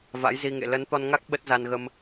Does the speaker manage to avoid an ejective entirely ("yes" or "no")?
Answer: yes